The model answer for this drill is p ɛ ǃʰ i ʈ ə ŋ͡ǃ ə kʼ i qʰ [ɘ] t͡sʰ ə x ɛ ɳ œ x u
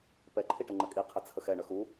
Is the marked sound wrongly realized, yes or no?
no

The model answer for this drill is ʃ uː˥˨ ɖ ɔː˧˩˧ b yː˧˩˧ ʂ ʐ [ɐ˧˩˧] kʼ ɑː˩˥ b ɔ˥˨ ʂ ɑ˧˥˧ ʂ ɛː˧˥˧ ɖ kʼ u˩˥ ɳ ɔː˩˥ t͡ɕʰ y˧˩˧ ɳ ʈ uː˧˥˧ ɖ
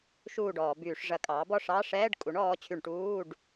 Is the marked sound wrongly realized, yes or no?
no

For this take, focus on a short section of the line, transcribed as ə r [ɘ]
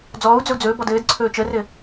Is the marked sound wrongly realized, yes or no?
no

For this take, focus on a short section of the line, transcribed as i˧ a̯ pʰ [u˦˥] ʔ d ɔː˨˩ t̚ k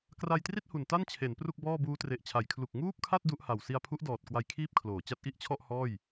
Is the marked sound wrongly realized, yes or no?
no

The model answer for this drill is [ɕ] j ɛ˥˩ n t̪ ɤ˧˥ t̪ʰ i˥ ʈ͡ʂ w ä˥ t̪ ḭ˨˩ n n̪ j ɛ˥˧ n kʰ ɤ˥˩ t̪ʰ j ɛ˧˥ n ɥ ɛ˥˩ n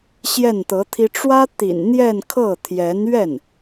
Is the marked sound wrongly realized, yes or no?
no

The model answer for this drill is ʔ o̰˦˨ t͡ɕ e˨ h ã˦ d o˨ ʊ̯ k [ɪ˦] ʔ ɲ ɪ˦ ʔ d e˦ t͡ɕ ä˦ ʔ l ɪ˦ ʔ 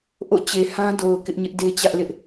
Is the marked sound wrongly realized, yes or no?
no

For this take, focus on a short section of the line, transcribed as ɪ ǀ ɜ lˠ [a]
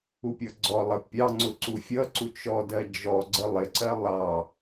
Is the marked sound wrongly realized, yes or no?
yes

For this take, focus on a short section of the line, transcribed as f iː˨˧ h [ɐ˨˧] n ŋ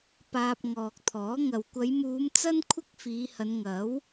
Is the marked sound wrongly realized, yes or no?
no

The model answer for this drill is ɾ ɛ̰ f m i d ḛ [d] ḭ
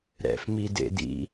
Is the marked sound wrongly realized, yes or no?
no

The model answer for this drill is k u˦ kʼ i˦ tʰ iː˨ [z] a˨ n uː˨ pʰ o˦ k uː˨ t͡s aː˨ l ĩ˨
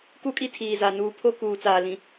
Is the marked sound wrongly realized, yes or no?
no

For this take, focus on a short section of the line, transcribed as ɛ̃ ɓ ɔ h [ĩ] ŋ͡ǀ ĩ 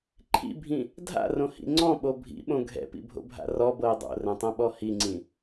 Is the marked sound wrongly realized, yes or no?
yes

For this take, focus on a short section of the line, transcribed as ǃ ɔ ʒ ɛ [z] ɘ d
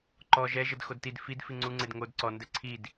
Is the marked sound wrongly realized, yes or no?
yes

